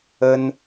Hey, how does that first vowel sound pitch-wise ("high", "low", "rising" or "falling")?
high